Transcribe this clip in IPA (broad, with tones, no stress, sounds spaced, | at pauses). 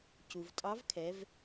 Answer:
c u˩ v tʼ ɑ˧˥ v kʰ ɛ˩˧ v